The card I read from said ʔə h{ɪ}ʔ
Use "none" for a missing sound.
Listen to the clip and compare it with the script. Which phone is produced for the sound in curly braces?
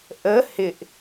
ɪ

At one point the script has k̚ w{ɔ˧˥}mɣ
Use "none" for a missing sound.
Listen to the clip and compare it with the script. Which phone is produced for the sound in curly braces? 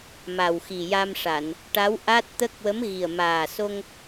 ə˧˥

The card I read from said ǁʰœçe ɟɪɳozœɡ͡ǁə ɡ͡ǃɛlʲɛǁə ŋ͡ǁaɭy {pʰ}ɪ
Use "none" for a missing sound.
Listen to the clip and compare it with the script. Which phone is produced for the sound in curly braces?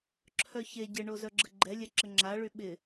ɓ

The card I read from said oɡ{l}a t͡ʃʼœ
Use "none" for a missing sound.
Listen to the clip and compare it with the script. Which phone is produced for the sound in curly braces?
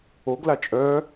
l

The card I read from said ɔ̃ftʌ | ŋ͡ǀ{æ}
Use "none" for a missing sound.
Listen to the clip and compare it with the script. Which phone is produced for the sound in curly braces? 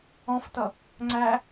æ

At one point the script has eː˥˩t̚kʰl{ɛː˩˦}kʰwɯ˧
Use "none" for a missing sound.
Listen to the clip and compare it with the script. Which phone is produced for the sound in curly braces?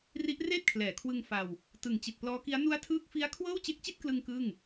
ɛː˩˦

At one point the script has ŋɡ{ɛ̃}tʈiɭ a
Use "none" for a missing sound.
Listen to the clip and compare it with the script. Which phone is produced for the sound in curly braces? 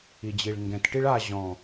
ɛ̃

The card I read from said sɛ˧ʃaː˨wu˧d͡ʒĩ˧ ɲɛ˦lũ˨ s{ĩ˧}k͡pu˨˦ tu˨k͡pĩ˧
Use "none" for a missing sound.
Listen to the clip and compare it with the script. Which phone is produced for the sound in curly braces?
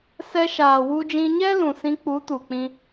ĩ˧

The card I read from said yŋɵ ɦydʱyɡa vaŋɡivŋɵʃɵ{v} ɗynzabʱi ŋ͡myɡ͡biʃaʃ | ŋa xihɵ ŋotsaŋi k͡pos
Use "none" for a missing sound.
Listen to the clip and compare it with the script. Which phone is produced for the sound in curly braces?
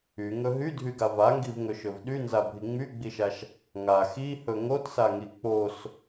v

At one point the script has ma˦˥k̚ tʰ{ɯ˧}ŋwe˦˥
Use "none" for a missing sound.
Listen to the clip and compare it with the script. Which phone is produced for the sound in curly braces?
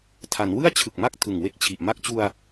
ɯ˨˩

